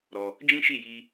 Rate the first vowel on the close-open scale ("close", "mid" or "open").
mid